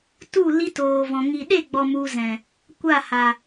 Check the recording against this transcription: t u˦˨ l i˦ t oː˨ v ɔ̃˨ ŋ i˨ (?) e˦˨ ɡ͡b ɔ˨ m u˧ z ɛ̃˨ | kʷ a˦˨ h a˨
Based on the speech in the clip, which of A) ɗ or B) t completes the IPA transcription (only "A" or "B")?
A